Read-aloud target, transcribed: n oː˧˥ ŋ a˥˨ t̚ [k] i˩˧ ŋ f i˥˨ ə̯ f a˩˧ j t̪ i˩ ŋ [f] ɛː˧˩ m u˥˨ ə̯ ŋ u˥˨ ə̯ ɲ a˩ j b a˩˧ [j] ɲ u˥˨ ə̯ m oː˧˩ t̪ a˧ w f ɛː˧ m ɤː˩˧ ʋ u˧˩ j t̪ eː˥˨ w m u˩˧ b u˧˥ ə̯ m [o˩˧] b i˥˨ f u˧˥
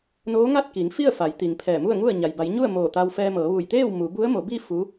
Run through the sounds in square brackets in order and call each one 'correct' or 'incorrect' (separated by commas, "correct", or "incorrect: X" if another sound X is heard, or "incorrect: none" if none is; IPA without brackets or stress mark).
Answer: correct, incorrect: pʰ, correct, correct